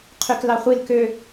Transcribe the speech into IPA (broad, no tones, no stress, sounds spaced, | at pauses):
qʰ y k l ɑ χʷ i l k ø